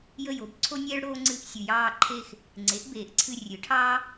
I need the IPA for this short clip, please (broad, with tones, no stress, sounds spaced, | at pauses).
j ə˥˧ j o˩˥ b ǀʰ o˥ nʲ eː˥ ɭ ɽ oː˥ ŋ͡ǀ ɨ˥˧ ʔ sʲ ɨ˨ j ɑː˥˧ ǃʰ e˥˧ x | ŋ͡ǀ e˩˥ ʔ b eː˨ ʔ ǀʰ ɨ˥˧ rʲ ɨ˩˥ ʈʰ ɑː˥